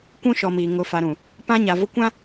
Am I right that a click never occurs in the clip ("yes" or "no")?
yes